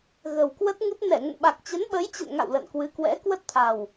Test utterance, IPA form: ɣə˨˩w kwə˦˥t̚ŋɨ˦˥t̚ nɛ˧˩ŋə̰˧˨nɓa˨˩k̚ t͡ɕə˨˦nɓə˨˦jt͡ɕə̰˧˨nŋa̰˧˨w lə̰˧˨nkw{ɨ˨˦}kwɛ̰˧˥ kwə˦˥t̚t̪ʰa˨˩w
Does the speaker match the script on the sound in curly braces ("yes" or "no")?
yes